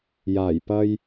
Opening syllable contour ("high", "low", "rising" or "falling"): low